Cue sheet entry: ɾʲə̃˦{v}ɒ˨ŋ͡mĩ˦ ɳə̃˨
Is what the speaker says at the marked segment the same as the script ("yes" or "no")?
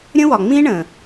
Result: no